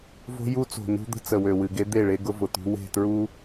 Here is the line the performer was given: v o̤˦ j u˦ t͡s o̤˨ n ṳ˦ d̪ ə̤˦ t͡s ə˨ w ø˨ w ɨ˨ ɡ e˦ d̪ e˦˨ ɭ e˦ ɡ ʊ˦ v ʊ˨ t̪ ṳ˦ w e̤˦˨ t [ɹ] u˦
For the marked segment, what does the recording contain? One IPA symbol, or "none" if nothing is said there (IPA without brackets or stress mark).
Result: ɹ